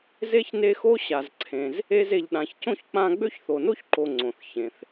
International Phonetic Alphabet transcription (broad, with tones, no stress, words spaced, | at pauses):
ze˥çne˦xo˥ ɕa˨zǀʰẽ˨z | e˦ze˨ʎɗã˨ç cõ˥çk͡pã˦ ɡ͡bø˥çθo˨no˥çǃo˨ ŋ͡ǀõ˩θ çẽ˩θ